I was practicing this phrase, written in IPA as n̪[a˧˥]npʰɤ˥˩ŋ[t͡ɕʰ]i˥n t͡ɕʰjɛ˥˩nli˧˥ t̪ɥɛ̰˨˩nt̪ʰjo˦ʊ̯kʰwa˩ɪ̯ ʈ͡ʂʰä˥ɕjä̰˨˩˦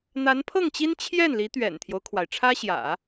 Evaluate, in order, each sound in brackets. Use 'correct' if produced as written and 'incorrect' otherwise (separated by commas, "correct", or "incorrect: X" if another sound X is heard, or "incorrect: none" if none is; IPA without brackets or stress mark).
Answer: correct, incorrect: t͡ɕ